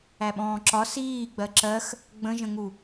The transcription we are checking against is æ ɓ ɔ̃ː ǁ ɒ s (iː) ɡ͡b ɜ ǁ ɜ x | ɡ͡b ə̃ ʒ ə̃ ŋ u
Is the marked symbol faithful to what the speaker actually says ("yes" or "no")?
yes